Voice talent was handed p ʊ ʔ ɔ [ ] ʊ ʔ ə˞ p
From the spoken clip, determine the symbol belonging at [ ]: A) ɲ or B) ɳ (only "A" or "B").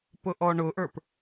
B